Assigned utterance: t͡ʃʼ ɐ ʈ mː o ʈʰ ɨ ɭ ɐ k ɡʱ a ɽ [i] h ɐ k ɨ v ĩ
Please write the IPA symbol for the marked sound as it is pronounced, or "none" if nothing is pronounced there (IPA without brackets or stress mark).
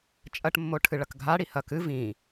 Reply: i